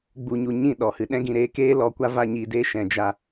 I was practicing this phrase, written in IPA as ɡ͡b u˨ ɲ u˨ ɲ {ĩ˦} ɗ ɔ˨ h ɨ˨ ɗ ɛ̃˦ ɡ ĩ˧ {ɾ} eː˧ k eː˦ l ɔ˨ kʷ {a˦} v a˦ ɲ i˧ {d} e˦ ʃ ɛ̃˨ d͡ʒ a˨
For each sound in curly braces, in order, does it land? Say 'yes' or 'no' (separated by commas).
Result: no, yes, yes, yes